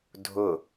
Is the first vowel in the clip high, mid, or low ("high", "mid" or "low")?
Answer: high